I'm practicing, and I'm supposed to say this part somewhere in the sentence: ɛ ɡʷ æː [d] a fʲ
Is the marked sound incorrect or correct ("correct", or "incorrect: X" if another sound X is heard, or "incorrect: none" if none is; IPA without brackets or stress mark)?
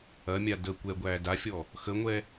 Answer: correct